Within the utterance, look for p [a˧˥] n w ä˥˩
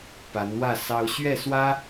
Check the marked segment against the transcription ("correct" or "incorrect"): correct